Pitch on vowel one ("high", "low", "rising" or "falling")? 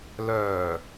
low